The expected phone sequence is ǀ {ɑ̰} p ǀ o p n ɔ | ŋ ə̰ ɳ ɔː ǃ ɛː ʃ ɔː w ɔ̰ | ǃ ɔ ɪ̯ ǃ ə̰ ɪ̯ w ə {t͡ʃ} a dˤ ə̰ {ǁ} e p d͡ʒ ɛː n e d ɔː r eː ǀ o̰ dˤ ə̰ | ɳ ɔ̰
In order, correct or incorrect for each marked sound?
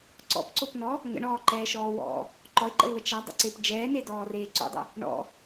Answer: incorrect: ɔ̰, correct, incorrect: ǀ

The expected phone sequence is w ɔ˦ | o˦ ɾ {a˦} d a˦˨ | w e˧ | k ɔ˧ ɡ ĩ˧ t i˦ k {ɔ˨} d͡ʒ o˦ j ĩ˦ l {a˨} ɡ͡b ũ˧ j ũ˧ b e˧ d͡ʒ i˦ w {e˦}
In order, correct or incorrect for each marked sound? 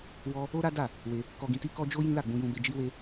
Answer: correct, incorrect: ɔ˦, incorrect: a˦˨, correct

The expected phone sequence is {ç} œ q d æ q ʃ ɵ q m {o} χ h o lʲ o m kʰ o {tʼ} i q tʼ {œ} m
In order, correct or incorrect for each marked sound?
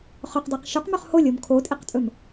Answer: incorrect: χ, incorrect: ɵ, correct, incorrect: ɵ

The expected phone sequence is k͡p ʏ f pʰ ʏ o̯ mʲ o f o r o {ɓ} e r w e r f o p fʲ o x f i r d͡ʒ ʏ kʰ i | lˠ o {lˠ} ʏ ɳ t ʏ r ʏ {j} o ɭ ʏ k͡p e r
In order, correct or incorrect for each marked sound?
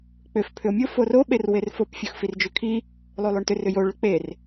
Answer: correct, correct, correct

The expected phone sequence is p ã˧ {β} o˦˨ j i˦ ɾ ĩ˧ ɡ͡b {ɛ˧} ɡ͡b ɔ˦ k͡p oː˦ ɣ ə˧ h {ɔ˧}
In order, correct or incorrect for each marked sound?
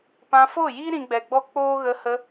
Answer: incorrect: f, correct, incorrect: ə˧

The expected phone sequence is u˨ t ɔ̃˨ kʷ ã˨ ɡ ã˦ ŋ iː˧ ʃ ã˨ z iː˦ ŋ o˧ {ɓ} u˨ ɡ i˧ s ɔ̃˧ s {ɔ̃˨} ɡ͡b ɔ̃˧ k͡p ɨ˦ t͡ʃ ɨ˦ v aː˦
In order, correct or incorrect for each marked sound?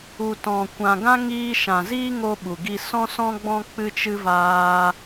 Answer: correct, incorrect: ɔ̃˧

